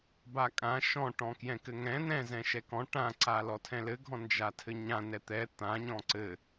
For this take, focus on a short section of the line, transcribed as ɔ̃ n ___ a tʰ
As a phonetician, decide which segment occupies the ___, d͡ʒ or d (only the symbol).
d͡ʒ